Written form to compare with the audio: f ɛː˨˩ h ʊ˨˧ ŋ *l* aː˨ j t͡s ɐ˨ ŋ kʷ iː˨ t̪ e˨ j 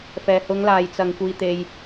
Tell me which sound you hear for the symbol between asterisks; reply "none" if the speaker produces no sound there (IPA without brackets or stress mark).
l